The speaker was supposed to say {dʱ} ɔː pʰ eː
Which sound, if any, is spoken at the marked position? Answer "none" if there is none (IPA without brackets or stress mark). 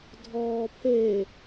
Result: dʱ